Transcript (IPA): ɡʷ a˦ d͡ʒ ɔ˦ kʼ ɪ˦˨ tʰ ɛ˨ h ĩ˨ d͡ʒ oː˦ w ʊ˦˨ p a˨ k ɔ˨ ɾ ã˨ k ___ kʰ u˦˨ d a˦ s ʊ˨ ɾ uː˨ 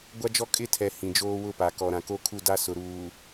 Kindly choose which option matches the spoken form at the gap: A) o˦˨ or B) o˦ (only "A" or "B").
A